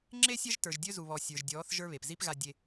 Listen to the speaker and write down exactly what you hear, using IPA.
ŋ͡ǁ e˦ sʲ ɜ˦ ʒ t ə˞˨ ʒ dʲ ɵ˦ z u˨ β ɔ˨ sʲ ə˞˨ ʒ dʲ ɔː˨˦ θ ʒ ə˞˦ β e˨ p z i˦ p ɣ a˨ dʲ e˨

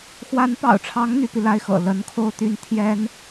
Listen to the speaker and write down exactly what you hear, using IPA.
x w a˧˥ n p ɑ̰˨˩ ʊ̯ ʈ͡ʂʰ ɑ˧˥ ŋ n̪ y˧˥ p i˧ l a˥ ɪ̯ x ɤ̰˨˩ l ə˧˥ n kʰ o˥˧ ʊ̯ t̪ y˥˩ n t̪ʰ j ɛ˥ n

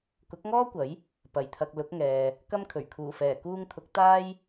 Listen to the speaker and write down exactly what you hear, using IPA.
k ʊ˨˥ k̚ ŋ ɔː˥ kʷ ɐ˨˥ j | p ɐ˨˩ j t̪ʰ ɐ˨ k̚ l ʊ˨˥ k̚ ŋ ɛː˨ | k ɐ˥ m kʰ ɵ˨˩ ɥ kʰ uː˨˩ f ɛː˨˩ k uː˧ ŋ t̪ʰ ʊ˨˥ k̚ t̪ aː˥ j

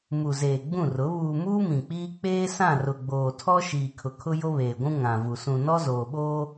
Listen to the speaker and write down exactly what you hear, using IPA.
m u˨ z eː˨ ɡ͡b ũ˦˨ r ʊ˨˦ β uː˨ m uː˦ m ĩ˨ k͡p iː˦ k͡p eː˦ s ã˦˨ r ʊ˨ ɡ͡b oː˨ tʰ ɔ˦ ʃ iː˨ kʰ ʊ˨ kʰ ʊ˦ j o˦ β eː˨ ɡʷ ũ˦ ŋ ã˨ v u˨ s ũ˨ n ɔ˦ z oː˨ ɓ oː˦

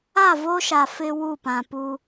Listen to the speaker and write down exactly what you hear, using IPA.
a˦˨ v o˦ ʃ a˨ f ɪ˦ w u˦˨ p ã˨ p u˦

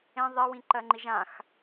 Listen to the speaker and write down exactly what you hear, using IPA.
ẽ ðˤ e w ĩ ǃ ɜ ŋ͡ǃ i ʒ ã x

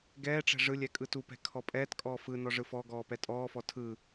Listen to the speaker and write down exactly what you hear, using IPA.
ɡ ɛː ʈ͡ʂ ɛ̤ ʐ ɯ lʲ ɛ kʼ ɯ t u p ɛ̤ kʰ ɔ pʼ ɛː t kʼ ɔː f ɯ n ɔ ʐ ɯ f ɔ ɡ ɔː p ɛ tʼ ɔː f ɔ tʰ ɯ

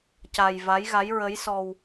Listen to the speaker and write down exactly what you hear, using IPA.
c a˧ j v a˧˥ j ɣ a˧˥ j ɹ ə˧˥ j s ɔ˧ w

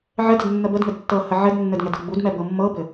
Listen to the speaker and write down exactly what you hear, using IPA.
ʕ ɘ d ə d nː ə b ə d ŋ ɘ d tː ɤ h ə ʕ ɘ d nː ɘ d ŋ ɛ d ɤ ɡ͡b u d m ɛ b ɤ mː ɤ b ɘ

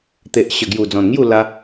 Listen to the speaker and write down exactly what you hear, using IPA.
t̪ e˨ ʔ ɕ ə˨˩ ɡ j u˨˩ d͡z ɔ̃˨˩ n ŋ j u˥˧ l a˧

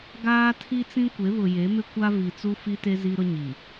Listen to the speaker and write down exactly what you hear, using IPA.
ɡ aː˦ tʰ i˦ t͡s ĩ˦ kʷ e˨˦ β ʊ˨ j e˨˦ m ɪ˦ kʷ a˦ v i˨ t͡s u˦ f i˦ t e˦ z i˦ ɾ ʊ˦ ɲ i˨

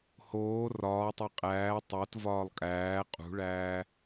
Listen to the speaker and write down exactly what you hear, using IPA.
h oː r ɒː tˤ e qʼ æː tˤ o t v ɒː lˠ kʼ æː qʼ ṳ ɭ æː

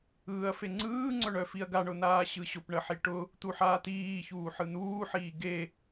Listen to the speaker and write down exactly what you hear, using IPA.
ɯː ɐ̯ f e ŋ͡ǀ ɯː ŋ͡ǀ œ ɳ œ f i ɐ̯ ɡ a ɳ ʊ n̪ aː ɕ ɯ ɕ ʊ p ɳ ə ħ i ʈ ʊ | t̪ u ħ aː t̪ iː ç uː ħ ɯ n̪ uː ħ iː ɡ e

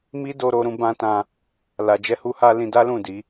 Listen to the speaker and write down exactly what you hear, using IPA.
m i˦ d o˧ ɾ o˧ ɾ ũ˧ b ã˦ t ã˧ | l a˧ d͡ʒ ɛ˦ h u˦ h a˦ l ĩ˧ d a˦ l ũ˦˨ d i˨˦

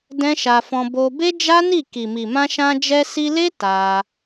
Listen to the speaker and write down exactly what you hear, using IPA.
d ɛ̃˦ ʃ a˧ f ɔ̃˧ b o˧ b e˦ d͡ʒ a˦ n i˦˨ k i˨ m i˨ m ã˧ ʃ ã˧ d͡ʒ ɛ˧ s i˧ l e˦ t a˧

